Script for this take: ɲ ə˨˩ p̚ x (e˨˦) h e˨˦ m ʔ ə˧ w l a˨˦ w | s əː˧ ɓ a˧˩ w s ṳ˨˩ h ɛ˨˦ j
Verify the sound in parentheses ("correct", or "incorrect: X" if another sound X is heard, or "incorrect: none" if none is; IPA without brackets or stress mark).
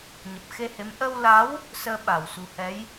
incorrect: e˧